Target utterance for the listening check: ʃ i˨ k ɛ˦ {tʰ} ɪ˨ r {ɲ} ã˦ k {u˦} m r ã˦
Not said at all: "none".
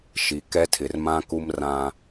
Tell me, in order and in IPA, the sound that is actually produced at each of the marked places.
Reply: tʰ, m, u˦

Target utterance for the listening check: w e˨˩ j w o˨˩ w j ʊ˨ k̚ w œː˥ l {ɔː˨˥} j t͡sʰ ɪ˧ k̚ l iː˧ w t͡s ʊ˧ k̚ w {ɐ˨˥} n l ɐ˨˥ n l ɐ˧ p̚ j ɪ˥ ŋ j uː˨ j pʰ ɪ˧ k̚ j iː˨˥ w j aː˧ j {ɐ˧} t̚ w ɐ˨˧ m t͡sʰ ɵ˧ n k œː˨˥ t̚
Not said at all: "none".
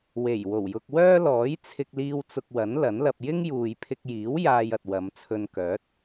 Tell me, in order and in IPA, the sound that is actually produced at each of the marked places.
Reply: ɔː˨˥, ɐ˨˥, ɐ˨

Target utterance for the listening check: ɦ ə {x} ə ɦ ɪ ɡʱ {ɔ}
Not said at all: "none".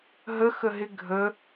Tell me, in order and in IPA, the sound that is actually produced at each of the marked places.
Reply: x, ə

